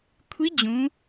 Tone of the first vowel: rising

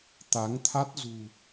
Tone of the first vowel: rising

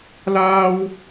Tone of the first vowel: high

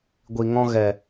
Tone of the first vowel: low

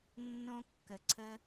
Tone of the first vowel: high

